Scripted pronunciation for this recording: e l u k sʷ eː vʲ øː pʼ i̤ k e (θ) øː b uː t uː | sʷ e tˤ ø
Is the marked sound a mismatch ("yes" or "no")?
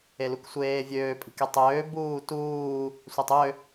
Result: yes